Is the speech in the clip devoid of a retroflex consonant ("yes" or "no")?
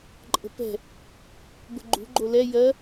yes